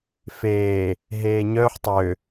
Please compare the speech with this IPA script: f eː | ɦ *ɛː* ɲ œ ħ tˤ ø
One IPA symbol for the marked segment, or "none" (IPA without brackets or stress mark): eː